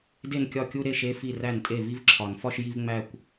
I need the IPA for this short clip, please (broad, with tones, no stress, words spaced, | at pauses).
de˥˩nkʲɒ˥˩kʲu˥˧ ɾe˥˧ʃe˧˥˧ fi˥˩ ræ˥˩ntʼe˥˩ vi˥˧vǁʰɒ˨˩˦nfɒ˥˧ʃ ji˥˧v ŋ͡mæ˥˧kʷ